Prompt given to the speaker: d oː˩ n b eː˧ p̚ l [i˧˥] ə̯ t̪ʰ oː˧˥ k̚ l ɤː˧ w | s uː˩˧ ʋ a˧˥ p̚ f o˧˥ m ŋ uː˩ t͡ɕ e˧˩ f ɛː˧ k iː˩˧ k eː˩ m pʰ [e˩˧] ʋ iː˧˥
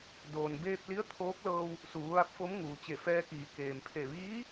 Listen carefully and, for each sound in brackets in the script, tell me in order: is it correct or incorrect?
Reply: correct, incorrect

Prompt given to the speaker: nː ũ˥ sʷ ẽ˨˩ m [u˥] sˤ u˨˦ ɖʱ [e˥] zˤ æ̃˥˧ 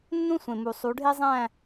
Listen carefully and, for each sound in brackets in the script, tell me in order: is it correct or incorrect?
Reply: incorrect, correct

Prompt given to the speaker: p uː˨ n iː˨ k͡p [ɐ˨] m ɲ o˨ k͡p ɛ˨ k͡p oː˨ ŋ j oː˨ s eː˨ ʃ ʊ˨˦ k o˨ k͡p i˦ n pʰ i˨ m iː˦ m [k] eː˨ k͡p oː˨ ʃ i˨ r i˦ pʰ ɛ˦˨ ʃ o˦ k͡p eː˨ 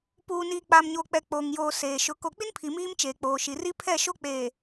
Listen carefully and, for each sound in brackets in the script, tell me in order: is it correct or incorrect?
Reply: incorrect, incorrect

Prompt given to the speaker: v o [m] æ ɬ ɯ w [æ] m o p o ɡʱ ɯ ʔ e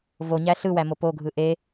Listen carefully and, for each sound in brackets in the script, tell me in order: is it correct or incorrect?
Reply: incorrect, correct

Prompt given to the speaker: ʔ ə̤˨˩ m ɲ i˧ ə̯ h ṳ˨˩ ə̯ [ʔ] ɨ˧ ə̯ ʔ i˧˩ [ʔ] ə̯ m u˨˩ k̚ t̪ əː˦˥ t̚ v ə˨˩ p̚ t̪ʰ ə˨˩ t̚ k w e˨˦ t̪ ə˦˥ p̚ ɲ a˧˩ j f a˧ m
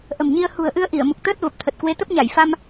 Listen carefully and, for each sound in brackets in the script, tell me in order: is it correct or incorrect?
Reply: correct, incorrect

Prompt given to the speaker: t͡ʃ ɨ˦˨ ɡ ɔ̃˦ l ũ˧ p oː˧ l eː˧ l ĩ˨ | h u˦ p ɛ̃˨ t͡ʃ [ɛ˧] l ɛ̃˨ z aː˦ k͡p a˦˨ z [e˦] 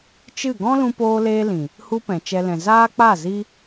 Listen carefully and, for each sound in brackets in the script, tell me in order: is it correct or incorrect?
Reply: correct, incorrect

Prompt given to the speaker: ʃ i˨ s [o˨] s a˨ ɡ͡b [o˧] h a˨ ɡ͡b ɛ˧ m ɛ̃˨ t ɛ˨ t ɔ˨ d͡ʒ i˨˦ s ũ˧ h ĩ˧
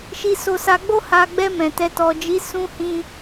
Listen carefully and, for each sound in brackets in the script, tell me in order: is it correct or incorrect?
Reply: correct, correct

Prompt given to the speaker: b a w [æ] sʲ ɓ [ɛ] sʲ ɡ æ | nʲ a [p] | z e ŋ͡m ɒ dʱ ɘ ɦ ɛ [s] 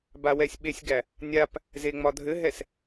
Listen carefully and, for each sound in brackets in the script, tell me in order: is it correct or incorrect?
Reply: incorrect, incorrect, correct, correct

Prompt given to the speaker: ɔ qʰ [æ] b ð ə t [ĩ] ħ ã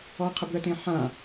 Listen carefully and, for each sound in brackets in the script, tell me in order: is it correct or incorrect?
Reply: incorrect, incorrect

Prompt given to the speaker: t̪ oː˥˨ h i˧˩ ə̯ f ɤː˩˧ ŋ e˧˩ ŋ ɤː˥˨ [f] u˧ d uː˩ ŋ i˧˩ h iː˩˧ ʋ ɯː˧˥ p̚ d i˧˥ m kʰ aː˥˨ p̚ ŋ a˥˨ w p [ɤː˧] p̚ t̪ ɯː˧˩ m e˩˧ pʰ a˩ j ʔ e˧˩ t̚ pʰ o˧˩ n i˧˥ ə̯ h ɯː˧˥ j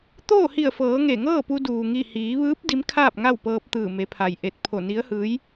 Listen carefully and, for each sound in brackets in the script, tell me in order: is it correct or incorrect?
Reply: incorrect, correct

